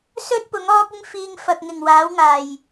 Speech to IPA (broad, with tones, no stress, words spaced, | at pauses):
sɵ˥t̚ pʊ˨˥ŋɔː˥k̚ɪ˥ŋfiː˧ŋ fɐ˨k̚ ŋɪ˨˩ŋ waː˨˥wŋaː˨˩j